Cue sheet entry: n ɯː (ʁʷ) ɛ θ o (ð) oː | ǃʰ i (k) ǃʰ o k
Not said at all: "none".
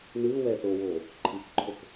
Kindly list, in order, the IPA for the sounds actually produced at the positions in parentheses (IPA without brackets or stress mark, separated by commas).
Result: w, w, k